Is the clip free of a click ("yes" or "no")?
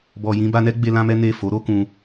yes